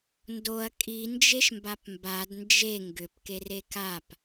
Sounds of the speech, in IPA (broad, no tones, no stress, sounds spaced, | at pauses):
n d o ɐ̯ kʼ i n d͡ʒ e ʃ m b a p m b a d n d͡ʒ e ŋ ɡ ʏ p k e r e k a p